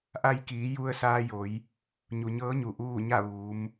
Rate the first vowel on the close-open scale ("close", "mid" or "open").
open